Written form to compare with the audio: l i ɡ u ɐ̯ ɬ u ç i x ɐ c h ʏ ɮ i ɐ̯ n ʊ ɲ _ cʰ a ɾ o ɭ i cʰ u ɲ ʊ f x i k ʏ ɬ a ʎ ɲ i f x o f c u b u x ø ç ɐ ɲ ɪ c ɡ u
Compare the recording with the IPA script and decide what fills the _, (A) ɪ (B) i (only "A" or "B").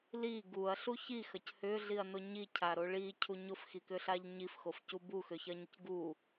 B